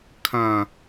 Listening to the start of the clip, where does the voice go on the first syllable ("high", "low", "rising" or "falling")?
low